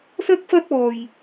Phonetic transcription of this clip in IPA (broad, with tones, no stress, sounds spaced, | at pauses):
s ɐ˥ k̚ f ɐ˥ t̚ ɔː˧ j